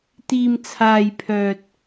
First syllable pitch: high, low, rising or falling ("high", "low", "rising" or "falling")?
low